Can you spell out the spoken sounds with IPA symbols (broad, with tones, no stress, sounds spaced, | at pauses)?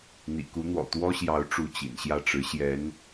n̪ ḭ˨˩ k u˧˥ n̪ w ɔ̰˨˩ t̪ w ɔ˥ ɕ j ɑ˧˥ ʊ̯ ʈ͡ʂ u˥˩ t͡ɕ ḭ˨˩ n ɕ j ä˥˩ ʈ͡ʂ ɻ̩˧˥ ɕ j ɛ˧˥ n